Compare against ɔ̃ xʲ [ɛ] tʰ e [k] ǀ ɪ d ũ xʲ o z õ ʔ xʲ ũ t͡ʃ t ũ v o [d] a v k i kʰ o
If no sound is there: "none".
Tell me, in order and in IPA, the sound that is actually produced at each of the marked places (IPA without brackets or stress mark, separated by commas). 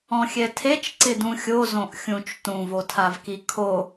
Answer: ɛ, t͡ʃ, tʰ